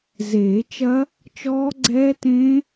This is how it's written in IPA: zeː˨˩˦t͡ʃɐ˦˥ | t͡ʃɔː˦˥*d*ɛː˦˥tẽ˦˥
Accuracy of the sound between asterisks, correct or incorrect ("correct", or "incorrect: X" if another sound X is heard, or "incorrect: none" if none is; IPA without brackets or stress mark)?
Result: incorrect: ɡ͡ǀ